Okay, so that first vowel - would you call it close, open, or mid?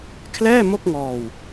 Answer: mid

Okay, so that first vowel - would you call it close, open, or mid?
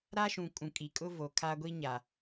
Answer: open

